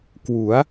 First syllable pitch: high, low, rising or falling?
rising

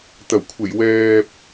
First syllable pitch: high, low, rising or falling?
low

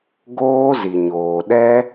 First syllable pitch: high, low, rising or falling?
high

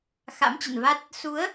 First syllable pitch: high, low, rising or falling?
rising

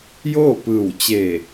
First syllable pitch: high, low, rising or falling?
falling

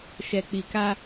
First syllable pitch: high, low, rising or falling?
low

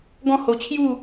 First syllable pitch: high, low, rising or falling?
falling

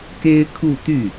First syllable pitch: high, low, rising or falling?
high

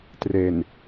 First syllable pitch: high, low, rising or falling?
low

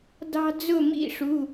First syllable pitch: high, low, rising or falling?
high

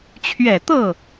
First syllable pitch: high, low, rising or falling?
low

